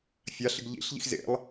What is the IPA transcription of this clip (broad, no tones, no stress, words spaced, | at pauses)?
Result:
fʲaɬɪɡ ʎḭɬʎḭx zḛlˠ